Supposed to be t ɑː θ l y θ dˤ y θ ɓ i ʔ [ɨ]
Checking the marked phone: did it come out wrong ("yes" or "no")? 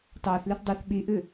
no